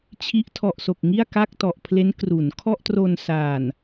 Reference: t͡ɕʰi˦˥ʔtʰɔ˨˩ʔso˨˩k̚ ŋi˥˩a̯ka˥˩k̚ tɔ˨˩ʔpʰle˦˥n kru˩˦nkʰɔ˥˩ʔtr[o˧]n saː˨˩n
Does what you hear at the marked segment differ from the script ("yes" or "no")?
no